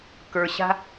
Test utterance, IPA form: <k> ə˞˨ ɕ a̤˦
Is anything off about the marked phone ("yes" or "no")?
no